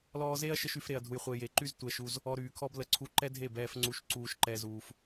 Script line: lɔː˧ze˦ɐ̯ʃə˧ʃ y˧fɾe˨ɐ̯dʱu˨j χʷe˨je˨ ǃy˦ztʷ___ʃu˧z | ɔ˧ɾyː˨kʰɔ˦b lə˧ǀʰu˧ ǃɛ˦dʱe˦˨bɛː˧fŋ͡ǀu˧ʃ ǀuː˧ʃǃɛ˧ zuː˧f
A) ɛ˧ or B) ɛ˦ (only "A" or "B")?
A